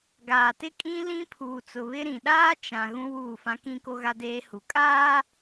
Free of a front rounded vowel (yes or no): yes